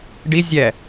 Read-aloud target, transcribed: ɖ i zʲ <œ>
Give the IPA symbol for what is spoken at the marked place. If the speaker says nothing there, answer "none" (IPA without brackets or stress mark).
ɛ